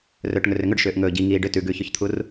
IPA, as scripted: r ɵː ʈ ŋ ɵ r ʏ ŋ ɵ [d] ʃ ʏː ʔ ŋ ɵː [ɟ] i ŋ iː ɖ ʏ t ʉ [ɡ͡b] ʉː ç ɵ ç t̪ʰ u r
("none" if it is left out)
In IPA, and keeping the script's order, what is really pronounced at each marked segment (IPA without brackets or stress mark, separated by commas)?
ɖ, ɟ, ɡ